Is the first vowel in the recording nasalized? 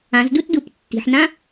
yes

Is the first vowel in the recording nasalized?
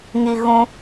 no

